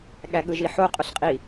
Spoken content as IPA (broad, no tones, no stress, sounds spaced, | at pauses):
ɠ æ ɠ ɯ ʒ i ħ o qʼ o ɬ qʼ i